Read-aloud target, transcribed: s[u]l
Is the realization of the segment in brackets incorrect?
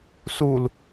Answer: no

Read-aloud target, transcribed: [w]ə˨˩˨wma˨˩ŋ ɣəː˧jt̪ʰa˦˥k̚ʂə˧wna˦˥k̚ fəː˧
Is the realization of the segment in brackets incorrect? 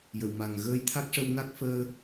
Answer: yes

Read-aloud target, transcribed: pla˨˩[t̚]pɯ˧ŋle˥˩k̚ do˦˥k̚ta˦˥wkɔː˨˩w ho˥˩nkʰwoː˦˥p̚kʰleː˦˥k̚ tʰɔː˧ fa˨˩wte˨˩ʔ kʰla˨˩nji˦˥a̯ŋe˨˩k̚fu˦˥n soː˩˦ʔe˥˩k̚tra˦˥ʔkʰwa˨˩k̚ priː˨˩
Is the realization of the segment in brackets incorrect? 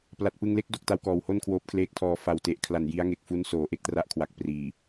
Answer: no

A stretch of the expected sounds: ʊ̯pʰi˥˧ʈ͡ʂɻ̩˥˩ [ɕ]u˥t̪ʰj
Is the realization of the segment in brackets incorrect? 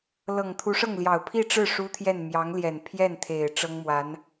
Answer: yes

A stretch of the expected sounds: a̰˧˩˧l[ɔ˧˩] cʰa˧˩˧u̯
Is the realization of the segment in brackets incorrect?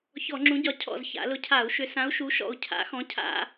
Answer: yes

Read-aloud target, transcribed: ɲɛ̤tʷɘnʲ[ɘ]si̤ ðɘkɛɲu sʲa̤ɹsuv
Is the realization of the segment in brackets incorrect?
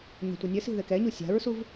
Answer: no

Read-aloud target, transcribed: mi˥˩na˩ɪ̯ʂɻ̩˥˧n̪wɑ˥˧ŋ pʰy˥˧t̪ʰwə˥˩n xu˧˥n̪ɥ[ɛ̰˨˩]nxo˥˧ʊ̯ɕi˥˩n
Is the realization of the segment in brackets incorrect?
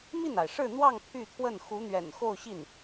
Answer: no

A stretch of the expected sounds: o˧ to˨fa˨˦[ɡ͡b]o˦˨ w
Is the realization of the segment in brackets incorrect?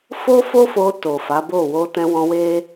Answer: yes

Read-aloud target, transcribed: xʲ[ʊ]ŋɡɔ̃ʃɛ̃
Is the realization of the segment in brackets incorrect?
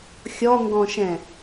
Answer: yes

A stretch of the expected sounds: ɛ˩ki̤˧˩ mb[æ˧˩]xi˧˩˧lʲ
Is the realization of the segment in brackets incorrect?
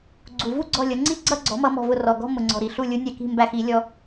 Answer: no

